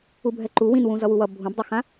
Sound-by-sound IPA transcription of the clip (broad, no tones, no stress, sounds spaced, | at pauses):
u bʱ ɛ ǃ u w ĩ n w ũ z ʌ w u w ʌ bʱ ũ b dˤ u x ã